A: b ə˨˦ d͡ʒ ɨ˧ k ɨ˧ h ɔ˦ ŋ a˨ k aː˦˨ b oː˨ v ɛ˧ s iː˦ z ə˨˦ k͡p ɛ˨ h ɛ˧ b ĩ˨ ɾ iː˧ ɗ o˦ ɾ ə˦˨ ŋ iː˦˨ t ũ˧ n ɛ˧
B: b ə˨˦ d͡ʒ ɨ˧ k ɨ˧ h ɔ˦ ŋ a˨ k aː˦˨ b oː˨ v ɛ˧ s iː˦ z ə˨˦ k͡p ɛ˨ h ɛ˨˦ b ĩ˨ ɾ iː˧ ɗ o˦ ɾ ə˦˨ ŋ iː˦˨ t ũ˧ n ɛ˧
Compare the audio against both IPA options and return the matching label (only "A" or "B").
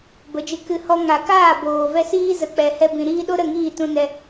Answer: A